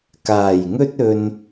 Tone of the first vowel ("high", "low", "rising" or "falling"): low